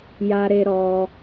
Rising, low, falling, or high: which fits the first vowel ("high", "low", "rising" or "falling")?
high